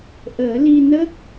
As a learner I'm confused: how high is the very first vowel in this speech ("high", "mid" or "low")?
mid